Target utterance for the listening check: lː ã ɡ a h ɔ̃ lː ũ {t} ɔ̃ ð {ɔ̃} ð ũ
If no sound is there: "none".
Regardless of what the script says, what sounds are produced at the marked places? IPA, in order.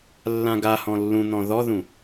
n̪, ɔ

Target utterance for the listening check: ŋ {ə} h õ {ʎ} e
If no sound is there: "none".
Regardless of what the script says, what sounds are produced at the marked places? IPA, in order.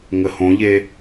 ə, ʎ

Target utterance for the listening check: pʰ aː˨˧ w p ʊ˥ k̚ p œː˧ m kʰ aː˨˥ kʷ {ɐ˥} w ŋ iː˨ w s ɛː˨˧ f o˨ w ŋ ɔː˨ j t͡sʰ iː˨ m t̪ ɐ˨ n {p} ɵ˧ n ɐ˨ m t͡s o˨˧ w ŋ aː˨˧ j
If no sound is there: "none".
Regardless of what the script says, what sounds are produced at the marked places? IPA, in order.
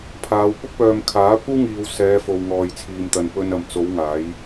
ɐ˥, p

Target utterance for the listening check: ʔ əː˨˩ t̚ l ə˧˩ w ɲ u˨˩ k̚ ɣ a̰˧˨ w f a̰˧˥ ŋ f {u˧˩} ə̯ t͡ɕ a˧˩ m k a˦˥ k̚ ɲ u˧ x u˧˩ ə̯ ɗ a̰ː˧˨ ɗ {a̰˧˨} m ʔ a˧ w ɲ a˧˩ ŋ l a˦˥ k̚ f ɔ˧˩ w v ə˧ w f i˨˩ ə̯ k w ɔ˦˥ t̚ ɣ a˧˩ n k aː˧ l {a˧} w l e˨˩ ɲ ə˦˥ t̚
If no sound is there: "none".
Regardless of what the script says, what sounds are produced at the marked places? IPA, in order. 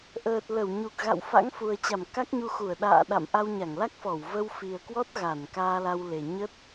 u˨˩, a̰˧˨, a˧

